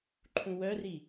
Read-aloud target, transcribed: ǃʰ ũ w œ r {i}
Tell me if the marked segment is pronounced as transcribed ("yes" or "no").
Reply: yes